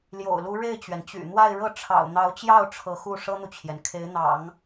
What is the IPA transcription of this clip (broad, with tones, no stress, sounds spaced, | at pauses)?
l j o̰˨˩ ʊ̯ l u˧˥ ɻ e˥˩ ɪ̯ t͡ɕ ɥ ɛ˩ n t͡ɕ y̰˨˩ n̪ w a˥˧ ɪ̯ ɻ ɤ˥˩ ʈ͡ʂʰ ɑ̰˨˩ ʊ̯ n̪ ɑ˧˥ ʊ̯ t͡ɕ j ɑ˥˩ ʊ̯ ʈ͡ʂʰ ɤ˧˥ x u˥˩ ʂ ɤ˥ n̪ u˨ t͡ɕʰ j ɛ˩ n kʰ e˧˥ ɪ̯ n̪ ɑ̰˨˩˦ ŋ